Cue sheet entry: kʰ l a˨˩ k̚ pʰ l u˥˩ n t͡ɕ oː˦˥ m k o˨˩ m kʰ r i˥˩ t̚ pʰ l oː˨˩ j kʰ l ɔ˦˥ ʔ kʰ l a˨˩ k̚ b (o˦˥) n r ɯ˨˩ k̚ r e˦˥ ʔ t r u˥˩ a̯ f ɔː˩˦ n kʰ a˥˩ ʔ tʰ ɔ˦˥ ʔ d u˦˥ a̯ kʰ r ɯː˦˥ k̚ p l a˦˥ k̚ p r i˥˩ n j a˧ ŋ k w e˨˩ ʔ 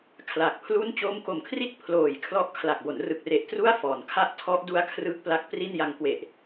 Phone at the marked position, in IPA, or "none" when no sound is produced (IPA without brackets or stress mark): o˩˦